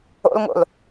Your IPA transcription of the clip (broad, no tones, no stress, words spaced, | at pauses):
o̰lŋo̰l